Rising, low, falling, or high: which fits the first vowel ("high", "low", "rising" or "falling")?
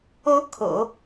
rising